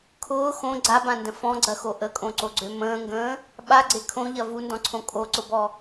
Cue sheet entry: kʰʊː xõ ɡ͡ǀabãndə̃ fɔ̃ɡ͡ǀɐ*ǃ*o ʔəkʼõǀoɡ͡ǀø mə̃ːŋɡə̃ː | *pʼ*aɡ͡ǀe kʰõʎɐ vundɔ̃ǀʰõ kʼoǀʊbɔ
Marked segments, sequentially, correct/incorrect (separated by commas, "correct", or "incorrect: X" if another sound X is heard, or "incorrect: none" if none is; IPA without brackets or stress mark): incorrect: x, incorrect: ɓ